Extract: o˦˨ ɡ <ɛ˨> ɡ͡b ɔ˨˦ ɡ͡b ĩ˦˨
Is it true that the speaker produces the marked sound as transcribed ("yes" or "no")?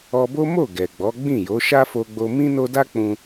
yes